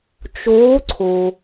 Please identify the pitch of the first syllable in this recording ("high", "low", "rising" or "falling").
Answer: rising